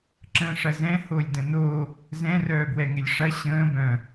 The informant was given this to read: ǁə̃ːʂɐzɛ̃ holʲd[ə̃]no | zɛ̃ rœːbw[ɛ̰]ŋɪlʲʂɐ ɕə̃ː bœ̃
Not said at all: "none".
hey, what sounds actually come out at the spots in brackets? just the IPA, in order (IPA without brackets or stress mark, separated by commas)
ə̃, ɛ